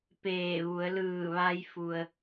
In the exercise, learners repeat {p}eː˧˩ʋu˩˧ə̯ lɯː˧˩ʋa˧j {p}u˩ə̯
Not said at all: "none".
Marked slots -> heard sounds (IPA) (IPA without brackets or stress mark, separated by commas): p, f